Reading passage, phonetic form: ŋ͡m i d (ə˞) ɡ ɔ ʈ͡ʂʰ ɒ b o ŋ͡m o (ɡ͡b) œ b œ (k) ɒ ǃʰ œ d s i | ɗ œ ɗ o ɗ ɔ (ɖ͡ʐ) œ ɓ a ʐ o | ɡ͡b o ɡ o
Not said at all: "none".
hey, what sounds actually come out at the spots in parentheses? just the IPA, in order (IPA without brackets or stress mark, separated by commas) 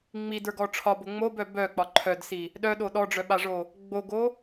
ə˞, b, k͡p, ɖ͡ʐ